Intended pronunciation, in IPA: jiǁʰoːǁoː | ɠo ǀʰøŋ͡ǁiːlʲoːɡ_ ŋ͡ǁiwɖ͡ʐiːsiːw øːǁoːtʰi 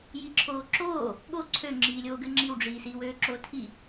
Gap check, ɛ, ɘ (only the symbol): ɘ